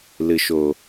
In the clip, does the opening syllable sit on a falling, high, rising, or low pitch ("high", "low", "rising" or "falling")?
low